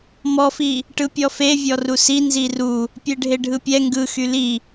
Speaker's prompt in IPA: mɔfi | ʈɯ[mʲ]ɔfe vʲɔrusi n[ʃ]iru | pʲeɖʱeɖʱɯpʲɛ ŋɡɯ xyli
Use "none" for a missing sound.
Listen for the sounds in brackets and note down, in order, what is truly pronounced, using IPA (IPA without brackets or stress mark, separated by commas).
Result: pʲ, z